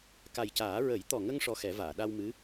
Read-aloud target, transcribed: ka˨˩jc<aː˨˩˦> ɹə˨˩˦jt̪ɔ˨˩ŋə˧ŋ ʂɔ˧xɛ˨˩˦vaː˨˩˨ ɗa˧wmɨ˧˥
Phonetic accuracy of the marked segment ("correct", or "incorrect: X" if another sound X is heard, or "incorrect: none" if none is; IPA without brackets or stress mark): correct